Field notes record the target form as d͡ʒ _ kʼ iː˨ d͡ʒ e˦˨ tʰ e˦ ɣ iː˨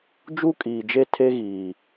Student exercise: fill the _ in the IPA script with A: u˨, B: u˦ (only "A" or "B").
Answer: B